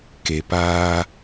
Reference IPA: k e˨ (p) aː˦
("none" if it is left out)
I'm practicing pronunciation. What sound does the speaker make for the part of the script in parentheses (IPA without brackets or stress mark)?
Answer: p